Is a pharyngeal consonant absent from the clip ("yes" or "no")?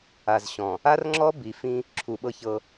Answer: yes